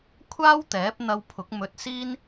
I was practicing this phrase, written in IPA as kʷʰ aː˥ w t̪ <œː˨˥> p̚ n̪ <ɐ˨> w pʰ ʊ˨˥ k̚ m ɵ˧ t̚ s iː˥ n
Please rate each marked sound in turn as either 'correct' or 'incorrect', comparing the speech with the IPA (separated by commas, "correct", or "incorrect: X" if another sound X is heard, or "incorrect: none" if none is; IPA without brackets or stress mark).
incorrect: ɛː˨˥, incorrect: ɐ˧